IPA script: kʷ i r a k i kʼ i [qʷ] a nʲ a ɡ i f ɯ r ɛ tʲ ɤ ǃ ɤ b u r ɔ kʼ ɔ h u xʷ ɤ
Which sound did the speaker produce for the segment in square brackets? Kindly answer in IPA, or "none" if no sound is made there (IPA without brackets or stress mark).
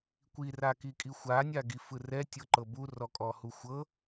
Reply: xʷ